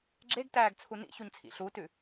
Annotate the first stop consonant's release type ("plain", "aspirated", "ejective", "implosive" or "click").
click